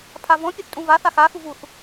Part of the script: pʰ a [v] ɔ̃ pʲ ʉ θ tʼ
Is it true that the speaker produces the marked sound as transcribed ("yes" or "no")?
yes